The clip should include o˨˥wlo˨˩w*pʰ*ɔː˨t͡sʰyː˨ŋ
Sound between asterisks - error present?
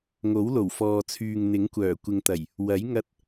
yes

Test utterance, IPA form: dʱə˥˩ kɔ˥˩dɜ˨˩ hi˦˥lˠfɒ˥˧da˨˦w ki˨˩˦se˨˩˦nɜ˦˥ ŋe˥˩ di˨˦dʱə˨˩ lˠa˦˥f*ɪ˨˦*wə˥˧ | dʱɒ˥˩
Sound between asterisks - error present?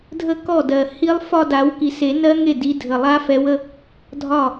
yes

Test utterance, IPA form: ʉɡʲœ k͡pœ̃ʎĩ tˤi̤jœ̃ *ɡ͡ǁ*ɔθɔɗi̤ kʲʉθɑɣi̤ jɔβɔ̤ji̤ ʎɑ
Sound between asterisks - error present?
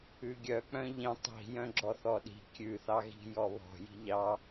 no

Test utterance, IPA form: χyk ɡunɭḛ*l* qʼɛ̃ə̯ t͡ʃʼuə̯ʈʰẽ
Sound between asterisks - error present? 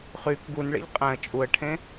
yes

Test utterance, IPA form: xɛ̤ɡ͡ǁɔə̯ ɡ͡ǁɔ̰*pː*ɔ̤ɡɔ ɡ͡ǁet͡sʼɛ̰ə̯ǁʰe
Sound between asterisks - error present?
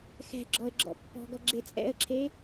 no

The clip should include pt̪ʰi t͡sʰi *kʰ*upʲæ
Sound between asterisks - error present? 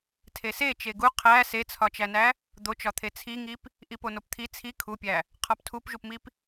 no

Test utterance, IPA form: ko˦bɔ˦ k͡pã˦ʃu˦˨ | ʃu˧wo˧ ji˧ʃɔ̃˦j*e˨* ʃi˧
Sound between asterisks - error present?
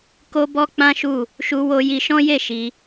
yes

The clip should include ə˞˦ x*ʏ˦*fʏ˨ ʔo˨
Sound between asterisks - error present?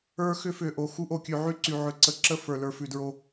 no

